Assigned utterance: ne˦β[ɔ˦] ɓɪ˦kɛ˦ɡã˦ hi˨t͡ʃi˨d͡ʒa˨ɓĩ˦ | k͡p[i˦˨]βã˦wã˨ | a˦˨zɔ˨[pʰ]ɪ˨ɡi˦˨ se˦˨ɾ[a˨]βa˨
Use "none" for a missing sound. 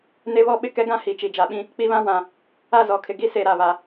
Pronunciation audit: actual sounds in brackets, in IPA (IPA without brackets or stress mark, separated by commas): ɔ˦, i˦, kʰ, a˨